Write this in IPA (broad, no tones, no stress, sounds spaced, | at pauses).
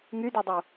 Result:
ŋ y d y dˤ u